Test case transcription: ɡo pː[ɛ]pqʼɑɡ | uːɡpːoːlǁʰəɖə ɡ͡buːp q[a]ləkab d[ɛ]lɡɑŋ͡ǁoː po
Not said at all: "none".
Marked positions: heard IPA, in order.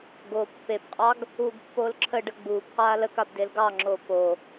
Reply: e, aː, e

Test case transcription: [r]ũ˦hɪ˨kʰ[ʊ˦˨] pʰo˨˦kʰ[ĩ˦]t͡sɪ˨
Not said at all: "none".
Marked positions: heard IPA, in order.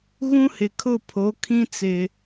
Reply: ɣ, ʊ˦˨, ĩ˦

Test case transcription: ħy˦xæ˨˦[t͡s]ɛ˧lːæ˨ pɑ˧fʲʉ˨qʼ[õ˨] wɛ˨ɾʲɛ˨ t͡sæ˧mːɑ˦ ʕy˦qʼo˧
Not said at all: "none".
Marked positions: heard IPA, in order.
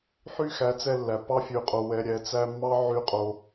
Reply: t͡s, o˨

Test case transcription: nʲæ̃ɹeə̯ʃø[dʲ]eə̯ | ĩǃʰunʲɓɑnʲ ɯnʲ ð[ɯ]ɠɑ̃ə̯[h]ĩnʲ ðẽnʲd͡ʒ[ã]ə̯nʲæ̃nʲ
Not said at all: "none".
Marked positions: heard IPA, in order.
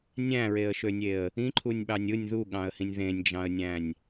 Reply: nʲ, u, h, ɑ̃

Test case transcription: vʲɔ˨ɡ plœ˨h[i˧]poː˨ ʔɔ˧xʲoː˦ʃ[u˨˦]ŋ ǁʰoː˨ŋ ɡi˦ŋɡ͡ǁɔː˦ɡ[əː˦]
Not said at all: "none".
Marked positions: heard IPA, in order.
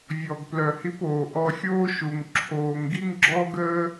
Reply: i˧, u˨, əː˦

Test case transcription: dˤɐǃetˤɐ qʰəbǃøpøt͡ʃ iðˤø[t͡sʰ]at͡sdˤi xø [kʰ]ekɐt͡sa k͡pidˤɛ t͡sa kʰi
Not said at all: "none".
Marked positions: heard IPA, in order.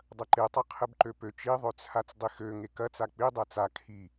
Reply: t͡sʰ, ŋ

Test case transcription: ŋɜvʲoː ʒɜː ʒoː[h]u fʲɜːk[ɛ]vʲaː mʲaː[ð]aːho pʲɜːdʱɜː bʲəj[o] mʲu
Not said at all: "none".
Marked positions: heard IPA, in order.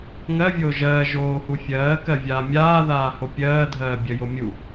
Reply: h, ɜ, ð, o

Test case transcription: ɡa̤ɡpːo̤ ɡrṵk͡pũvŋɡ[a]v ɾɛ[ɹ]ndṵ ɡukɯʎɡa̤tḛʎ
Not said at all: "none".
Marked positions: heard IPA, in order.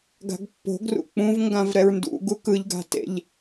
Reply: ã, ɹ

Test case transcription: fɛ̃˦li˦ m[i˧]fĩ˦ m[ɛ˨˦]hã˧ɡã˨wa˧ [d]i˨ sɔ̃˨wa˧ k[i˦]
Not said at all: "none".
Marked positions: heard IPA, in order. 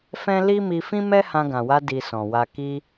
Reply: i˧, ɛ˦, d, i˦

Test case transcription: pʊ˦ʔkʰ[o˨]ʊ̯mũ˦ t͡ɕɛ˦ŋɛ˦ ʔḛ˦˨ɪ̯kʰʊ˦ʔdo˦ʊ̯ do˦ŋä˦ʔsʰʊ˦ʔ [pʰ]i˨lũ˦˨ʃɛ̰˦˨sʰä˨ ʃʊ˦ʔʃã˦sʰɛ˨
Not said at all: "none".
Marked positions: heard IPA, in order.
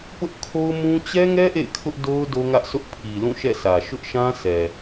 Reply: o˦, pʰ

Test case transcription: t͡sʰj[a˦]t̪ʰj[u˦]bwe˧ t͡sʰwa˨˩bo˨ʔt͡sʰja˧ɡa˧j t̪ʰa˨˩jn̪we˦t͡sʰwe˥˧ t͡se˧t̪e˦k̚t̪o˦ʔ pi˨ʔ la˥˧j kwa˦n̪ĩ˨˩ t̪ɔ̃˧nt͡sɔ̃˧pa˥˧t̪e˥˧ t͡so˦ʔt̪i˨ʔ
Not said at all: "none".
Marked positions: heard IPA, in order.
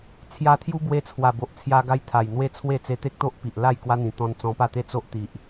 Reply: a˧, u˦

